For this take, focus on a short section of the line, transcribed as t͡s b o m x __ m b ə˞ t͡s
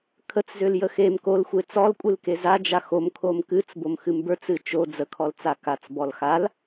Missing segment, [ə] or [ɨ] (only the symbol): ɨ